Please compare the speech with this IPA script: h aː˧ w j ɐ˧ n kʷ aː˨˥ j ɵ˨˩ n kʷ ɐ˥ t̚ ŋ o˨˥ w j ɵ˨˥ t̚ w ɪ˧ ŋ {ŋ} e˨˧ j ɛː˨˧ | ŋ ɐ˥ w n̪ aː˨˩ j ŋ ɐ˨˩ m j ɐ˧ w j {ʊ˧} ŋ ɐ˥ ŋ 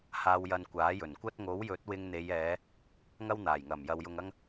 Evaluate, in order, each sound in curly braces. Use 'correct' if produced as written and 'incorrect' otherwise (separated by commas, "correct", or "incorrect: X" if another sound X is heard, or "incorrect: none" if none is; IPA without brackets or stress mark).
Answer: incorrect: n̪, correct